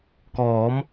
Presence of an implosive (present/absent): absent